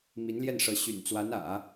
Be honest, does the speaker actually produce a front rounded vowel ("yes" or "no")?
yes